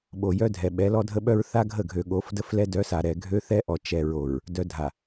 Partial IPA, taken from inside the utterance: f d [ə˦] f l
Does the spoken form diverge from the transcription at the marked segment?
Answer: no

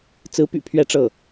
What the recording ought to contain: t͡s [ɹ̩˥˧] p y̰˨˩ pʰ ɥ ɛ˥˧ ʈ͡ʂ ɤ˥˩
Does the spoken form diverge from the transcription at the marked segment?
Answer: yes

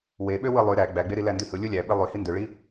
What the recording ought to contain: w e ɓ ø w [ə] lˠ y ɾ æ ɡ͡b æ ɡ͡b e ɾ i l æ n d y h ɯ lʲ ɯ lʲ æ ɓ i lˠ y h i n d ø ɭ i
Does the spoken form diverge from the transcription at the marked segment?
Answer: yes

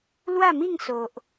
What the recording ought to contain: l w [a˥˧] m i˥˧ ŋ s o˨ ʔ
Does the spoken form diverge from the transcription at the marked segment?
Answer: no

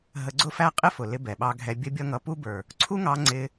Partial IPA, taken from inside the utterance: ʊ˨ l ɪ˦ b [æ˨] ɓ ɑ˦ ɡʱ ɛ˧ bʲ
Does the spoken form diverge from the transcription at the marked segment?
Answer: yes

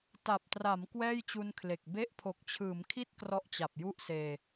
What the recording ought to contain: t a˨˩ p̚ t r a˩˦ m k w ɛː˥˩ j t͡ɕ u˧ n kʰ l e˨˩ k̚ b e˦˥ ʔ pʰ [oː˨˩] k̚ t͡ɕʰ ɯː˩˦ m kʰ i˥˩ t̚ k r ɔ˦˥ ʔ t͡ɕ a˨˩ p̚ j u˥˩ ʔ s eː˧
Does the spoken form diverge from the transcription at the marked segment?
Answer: yes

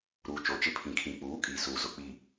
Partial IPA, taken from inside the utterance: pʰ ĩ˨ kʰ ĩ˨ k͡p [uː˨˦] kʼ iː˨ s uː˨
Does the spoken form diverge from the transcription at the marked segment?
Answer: no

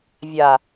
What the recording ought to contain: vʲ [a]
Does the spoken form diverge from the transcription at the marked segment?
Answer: no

